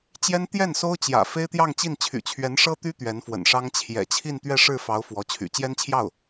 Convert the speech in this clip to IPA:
t͡ɕ j ɛ˥ n t̪ j ɛ˥˩ n s o˥ ʊ̯ t͡ɕ j ä̰˨˩ f e˥ ɪ̯ t̪ j ɑ˥˧ ŋ t͡ɕ i˥˩ n t͡ɕʰ y̰˨˩ t͡ɕʰ ɥ ɛ˧˥ n ʂ ɤ˥ t̪ y˥ t̪ ɥ ɛ˧˥ n f w ə̰˨˩ n ʂ ɑ˥ ŋ t͡ɕʰ j ɛ̰˨˩ t͡ɕʰ i˥˧ n t̪ ɥ ɛ˥˧ ʂ ɻ̩˥˩ f ɑ˧˥ ʊ̯ f w ɔ˧˥ t͡ɕʰ y̰˨˩ t͡ɕ j ɛ˥ n t͡ɕʰ j ɑ˥˩ ʊ̯

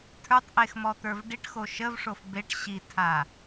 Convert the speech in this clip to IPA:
tʰ ə˞ tˤ ʔ e x m ɔ t̪ ə˞ v ɖ i ʈ x o ʃ ə v ʂ o f b e ʈ ɕ i tʰ a

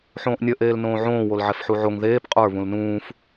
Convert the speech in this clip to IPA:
ħ õː ʔ nʲ ə ʔ eː l n õː ʕ õː w o l ʕ ɛ f ħ u ʕ o ŋ ð eː p qʼ ə˞ β ũ l n ũː f

